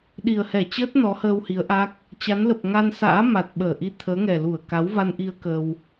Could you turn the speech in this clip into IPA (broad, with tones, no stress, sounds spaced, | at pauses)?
ɗ i˨˩ ə̯ h ɛ˧˩ t͡ɕ əː˦˥ t̚ n ɔ˨˦ h əː˧ w h i˨˦ ə̯ ʔ a˦˥ k̚ | t͡ɕ a˨˦ n l ə˨˩ p̚ ŋ a˧ n s a̰ː˧˥ m a˨˩ t̚ ɓ əː˧˩ ʔ i˧ t̪ʰ əː˨˦ ŋ ɛ˨˩ l u˧˩ ə̯ k a˨˦ w v a˧ n ʔ i˧ ə̯ k ə˧ w